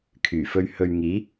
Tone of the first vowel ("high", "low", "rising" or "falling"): low